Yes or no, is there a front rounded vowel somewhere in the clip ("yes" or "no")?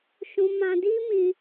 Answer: no